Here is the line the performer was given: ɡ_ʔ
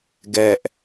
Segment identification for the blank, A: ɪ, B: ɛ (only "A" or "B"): B